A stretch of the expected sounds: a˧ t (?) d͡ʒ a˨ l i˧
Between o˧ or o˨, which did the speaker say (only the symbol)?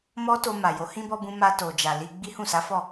o˨